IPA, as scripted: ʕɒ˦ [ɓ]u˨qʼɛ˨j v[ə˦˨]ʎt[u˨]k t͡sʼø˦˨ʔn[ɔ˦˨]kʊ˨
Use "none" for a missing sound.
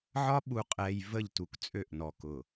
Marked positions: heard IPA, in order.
ɓ, ə˦˨, u˨, ɔ˨

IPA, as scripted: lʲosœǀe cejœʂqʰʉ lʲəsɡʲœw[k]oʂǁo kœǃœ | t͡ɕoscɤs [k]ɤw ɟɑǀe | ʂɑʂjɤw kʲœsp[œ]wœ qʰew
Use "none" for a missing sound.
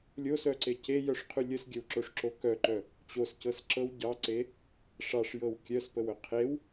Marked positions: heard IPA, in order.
ǁ, ǁ, ə

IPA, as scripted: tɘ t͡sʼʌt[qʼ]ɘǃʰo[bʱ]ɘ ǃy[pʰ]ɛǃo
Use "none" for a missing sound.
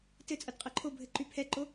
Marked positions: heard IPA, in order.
qʼ, bʱ, pʰ

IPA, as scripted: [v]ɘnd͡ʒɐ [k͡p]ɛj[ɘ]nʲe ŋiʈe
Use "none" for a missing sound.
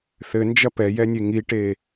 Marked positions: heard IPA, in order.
θ, p, ɛ

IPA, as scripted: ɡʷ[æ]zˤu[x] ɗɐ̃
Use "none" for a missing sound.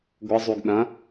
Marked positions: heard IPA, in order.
ə, ɡ

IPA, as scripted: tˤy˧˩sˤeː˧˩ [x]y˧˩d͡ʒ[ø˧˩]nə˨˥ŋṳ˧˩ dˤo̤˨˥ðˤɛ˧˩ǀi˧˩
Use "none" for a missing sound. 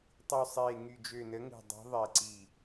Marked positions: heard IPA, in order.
ŋ, ø˧˩

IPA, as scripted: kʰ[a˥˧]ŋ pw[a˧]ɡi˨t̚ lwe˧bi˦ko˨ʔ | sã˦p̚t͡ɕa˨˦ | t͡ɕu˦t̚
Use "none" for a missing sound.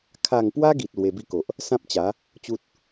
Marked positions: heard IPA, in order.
a˥˧, a˦

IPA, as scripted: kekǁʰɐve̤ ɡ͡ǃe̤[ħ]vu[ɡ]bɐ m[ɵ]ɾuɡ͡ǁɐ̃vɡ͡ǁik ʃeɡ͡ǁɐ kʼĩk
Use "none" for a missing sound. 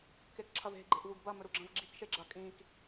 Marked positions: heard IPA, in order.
ʔ, ɡ, ɵ

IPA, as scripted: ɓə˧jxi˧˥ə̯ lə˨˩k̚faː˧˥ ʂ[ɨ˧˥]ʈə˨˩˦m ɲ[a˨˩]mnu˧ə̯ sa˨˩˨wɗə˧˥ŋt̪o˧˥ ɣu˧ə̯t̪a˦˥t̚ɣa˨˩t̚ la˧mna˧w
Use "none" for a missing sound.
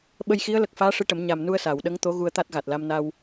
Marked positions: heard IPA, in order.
ɨ˧˥, a˨˩

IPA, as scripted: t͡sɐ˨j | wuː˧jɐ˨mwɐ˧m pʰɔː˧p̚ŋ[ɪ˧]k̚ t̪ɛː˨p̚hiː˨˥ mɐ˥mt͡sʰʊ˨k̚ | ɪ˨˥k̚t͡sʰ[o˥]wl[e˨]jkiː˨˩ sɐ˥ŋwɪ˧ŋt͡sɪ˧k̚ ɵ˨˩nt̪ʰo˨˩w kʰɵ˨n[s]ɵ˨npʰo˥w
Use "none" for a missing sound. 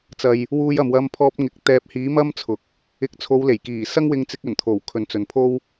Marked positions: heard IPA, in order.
ɪ˨, o˨˧, e˨˩, t͡s

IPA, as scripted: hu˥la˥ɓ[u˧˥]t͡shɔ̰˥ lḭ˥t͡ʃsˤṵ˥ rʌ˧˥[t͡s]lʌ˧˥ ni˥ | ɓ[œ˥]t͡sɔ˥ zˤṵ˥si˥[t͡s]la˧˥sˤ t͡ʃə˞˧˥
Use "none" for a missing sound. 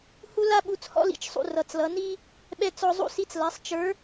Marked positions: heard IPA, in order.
u˧˥, t͡s, ɛ˥, t͡s

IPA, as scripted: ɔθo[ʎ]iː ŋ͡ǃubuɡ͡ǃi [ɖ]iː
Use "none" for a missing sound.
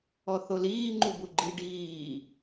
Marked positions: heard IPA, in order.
l, ɖ

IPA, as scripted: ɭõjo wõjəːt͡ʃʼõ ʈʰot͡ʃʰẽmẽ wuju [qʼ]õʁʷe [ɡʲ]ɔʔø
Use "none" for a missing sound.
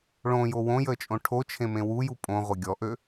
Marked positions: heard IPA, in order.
pʼ, ɡʲ

